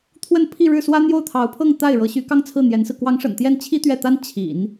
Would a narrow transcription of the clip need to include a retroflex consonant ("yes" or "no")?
yes